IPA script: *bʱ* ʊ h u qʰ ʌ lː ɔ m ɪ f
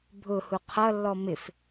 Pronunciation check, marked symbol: correct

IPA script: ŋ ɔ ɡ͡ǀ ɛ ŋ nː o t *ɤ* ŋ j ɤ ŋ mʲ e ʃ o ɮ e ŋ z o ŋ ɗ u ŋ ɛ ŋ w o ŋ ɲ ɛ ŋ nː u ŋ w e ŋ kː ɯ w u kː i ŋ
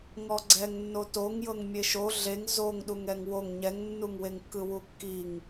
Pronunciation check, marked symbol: incorrect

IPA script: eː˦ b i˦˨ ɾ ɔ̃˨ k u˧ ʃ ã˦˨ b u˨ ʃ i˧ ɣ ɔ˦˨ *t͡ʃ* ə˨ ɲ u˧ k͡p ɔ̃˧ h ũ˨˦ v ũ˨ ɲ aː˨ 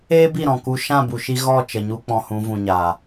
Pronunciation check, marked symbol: correct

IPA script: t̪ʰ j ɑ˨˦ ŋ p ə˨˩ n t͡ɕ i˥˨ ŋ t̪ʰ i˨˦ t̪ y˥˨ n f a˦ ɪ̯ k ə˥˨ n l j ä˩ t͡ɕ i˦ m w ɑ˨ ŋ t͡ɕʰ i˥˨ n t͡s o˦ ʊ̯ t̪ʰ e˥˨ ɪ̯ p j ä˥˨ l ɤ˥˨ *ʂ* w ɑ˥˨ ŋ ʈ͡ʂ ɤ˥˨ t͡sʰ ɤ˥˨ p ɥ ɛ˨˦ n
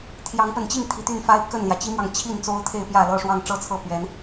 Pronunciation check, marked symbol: correct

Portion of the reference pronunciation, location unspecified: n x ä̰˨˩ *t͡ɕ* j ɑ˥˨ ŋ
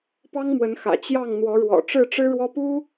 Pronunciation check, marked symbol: correct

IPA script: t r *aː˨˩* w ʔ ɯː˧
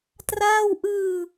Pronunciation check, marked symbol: incorrect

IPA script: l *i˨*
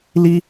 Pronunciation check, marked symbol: incorrect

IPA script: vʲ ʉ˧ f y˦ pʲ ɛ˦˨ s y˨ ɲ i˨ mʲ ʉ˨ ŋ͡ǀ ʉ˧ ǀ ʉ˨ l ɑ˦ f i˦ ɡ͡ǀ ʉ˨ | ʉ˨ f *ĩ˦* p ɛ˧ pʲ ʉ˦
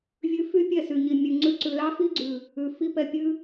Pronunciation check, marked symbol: incorrect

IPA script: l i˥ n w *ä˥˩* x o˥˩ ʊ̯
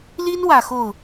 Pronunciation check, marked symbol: incorrect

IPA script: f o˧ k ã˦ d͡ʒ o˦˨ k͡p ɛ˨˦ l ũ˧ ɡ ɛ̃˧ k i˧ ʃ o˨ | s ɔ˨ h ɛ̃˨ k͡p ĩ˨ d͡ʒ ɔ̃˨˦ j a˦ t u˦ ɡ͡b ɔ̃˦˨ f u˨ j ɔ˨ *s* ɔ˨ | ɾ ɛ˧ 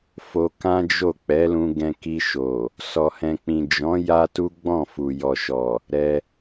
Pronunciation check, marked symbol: incorrect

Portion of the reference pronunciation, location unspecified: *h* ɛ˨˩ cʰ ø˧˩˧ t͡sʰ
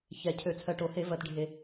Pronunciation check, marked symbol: incorrect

